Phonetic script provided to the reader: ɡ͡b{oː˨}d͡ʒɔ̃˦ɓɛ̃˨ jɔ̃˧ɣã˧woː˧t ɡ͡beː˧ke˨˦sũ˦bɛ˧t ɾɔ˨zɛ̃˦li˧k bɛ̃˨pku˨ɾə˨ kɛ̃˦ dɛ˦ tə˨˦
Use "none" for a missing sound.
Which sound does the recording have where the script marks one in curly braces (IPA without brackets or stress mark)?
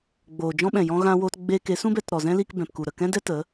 oː˨